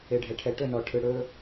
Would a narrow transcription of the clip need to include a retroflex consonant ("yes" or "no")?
yes